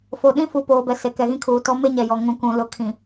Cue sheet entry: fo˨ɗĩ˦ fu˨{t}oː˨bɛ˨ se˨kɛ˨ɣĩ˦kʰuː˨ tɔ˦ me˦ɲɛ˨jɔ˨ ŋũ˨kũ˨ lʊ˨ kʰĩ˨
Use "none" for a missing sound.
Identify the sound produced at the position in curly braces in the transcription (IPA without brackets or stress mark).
p